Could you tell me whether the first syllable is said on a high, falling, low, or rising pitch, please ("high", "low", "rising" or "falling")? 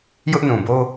high